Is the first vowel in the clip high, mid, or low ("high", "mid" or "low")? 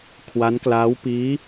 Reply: low